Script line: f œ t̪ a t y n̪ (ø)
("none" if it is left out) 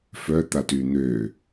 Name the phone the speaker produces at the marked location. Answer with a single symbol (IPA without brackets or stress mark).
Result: ø